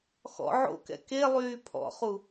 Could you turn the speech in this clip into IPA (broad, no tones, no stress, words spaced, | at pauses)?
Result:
xɔ̰ ʕo̰kɛ̰ kelˠyː pʰɔ̰χu